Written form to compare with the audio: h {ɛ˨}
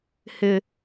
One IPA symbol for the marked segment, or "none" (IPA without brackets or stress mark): ɪ˨